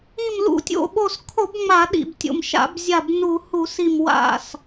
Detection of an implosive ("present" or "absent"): present